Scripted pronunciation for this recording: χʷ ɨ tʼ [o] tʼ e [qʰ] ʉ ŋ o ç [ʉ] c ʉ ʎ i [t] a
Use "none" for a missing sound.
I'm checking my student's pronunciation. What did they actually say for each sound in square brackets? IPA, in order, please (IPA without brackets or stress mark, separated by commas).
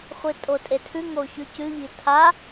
o, tʰ, ʉ, tʰ